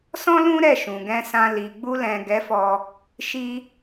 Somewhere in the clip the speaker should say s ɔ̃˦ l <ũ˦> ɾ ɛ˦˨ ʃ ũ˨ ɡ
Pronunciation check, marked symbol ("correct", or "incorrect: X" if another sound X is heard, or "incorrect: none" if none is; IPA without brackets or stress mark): correct